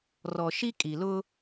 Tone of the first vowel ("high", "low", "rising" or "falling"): low